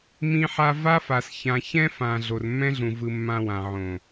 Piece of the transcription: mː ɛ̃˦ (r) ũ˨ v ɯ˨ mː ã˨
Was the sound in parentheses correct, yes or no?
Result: no